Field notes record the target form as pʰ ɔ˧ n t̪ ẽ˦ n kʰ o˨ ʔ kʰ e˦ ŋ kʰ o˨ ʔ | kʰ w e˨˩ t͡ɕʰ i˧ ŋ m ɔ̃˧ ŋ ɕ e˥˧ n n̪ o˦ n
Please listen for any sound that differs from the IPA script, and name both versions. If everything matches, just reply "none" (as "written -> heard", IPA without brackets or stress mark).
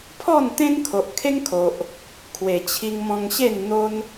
ɔ˧ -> ɔ˥˧